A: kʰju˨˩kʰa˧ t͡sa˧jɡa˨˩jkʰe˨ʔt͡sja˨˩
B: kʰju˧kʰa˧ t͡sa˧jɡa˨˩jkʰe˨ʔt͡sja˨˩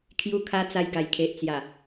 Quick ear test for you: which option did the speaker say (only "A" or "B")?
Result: B